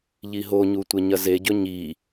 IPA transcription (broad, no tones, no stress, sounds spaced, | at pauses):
ʎ i ɦ o ɲ u tʷ e ɲ ɐ z e ɟ ɵ ɲ i